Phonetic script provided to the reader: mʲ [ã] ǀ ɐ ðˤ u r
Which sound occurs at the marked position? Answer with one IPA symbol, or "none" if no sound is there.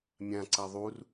ã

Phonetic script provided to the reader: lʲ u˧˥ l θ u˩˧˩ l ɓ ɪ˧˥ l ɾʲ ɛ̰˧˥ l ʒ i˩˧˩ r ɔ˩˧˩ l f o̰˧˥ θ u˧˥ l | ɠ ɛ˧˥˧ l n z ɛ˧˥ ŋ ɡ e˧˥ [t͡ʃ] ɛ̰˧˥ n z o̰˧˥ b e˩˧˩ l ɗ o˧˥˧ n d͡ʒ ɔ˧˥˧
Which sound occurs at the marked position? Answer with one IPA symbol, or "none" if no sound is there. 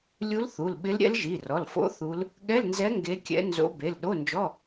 kʲ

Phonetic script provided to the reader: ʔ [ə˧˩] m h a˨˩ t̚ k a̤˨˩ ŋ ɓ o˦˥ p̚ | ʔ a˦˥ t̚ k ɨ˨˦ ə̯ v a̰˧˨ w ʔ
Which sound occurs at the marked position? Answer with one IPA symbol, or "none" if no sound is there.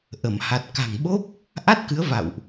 ə˧˩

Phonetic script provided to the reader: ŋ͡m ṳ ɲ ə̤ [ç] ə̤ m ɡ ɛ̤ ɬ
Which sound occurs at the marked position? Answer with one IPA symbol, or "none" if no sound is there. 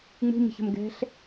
ç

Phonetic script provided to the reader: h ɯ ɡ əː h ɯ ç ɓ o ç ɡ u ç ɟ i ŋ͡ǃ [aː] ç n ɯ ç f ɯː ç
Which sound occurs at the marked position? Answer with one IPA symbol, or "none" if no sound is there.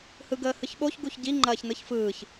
ɐː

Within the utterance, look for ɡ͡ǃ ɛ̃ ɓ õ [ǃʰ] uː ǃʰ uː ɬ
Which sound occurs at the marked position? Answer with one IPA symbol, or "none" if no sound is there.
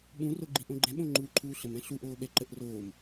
ŋ͡ǃ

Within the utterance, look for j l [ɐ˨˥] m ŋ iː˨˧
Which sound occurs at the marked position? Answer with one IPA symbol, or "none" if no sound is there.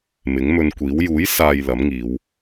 ɐ˨˥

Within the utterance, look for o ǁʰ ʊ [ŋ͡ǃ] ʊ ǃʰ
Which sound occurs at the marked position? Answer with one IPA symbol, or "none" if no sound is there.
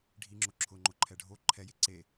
ŋ͡ǃ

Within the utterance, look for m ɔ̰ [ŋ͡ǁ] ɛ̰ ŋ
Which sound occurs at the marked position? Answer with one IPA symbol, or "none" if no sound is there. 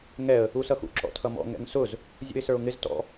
ŋ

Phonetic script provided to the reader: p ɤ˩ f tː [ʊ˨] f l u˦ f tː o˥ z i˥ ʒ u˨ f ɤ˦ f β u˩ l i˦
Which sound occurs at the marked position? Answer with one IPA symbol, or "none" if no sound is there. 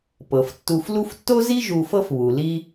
u˨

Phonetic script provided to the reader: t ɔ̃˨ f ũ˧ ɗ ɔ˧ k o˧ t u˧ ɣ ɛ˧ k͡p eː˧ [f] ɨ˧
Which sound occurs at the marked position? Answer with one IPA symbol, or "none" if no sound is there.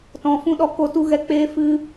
f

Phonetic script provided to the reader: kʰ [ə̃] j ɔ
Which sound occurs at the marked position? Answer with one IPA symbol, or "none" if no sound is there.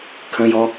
ə̃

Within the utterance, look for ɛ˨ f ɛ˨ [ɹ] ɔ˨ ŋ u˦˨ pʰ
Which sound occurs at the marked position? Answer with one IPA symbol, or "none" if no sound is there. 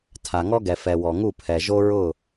w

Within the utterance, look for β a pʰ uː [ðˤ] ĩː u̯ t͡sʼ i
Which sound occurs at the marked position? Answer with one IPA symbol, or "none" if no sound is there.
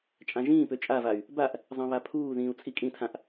ð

